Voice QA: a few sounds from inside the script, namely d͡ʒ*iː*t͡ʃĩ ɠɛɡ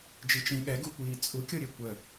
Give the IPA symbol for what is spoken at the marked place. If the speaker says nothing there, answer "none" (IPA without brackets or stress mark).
i